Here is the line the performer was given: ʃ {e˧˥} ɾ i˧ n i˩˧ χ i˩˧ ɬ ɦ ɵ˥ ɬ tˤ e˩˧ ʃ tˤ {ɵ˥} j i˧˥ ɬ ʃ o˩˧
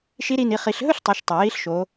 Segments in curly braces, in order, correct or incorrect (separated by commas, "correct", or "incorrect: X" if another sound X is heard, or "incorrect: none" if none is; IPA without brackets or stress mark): incorrect: i˧˥, incorrect: ɵ˩